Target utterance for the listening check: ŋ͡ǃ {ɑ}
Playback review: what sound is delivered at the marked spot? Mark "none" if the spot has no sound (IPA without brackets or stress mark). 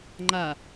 a